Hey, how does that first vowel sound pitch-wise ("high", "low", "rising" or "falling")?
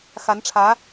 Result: rising